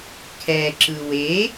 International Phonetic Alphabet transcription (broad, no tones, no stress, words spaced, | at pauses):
kʰɛǁɯ we